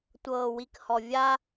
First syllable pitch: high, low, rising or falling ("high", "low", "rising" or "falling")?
low